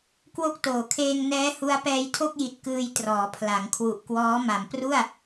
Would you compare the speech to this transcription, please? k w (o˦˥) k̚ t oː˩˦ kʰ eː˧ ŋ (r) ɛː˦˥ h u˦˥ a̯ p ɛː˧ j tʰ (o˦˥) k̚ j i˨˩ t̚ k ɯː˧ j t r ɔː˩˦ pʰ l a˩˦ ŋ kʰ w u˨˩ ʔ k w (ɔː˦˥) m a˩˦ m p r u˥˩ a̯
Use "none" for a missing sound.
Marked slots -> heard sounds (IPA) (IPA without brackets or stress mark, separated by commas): o˦˥, n, o˥˩, ɔː˦˥